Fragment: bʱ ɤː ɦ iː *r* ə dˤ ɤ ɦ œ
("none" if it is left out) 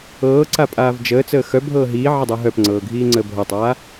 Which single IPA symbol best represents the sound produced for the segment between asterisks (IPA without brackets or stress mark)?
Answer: ʕ